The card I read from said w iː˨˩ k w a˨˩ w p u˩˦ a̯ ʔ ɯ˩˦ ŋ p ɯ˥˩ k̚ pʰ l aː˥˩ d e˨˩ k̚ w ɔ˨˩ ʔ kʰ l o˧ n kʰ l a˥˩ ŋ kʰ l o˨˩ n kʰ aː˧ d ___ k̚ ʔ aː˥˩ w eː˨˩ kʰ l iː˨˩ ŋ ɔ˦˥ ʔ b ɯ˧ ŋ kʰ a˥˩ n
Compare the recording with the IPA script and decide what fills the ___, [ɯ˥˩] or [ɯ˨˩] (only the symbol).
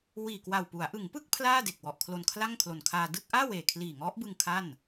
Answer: ɯ˥˩